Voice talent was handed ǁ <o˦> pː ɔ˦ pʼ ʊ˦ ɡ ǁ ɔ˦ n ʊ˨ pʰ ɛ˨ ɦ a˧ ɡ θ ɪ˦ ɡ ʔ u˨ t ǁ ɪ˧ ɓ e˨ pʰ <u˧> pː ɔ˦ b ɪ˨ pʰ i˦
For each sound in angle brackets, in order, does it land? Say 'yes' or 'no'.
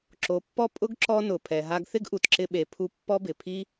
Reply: no, yes

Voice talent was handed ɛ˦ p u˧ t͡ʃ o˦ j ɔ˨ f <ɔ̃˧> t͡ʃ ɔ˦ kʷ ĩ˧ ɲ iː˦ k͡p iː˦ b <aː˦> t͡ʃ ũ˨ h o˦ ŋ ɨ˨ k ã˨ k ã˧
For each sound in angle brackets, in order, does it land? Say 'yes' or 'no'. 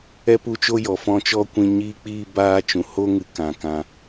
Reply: yes, yes

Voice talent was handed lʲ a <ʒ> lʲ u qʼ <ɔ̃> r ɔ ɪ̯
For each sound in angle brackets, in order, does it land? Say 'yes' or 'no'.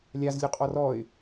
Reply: no, no

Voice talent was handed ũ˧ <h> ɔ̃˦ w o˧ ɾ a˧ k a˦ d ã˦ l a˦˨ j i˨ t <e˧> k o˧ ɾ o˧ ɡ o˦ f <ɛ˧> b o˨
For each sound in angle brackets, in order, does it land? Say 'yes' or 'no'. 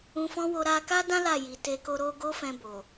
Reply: no, yes, no

